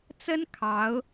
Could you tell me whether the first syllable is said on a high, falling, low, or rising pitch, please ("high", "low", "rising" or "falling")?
high